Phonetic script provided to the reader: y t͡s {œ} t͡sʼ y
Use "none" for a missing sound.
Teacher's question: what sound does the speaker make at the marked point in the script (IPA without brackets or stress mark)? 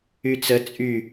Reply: ə